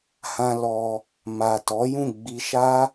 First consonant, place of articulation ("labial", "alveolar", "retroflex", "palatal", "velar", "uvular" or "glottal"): glottal